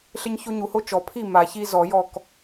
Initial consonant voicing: voiceless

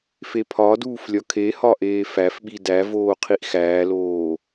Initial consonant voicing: voiceless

